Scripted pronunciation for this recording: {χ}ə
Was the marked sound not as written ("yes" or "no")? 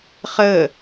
no